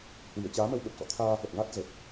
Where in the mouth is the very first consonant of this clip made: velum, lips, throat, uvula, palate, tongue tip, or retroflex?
throat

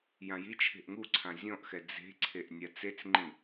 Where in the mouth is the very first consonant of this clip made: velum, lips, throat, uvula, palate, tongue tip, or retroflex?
palate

